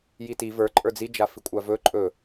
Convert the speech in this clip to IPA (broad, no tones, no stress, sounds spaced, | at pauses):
j i t i v ə˞ ǃʼ ə˞ d͡z i d͡ʒ a f i kʷʼ a v ɵ ǃʼ ɵ